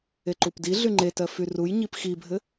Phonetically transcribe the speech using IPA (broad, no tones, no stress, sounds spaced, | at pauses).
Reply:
e ǃ u p d i ɮ y ŋ͡ǃ e t ɜ f y r u j ɲ i p x i bʱ ɘ